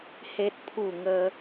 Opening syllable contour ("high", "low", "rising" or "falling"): high